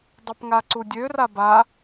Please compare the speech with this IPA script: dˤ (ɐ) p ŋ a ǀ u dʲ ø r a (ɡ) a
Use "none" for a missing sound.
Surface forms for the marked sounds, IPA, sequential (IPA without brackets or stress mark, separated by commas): ɐ, b